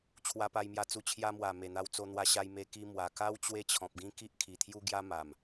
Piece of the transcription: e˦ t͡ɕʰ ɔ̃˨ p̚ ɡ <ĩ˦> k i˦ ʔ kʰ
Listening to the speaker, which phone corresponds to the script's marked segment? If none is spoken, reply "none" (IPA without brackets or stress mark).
ĩ˦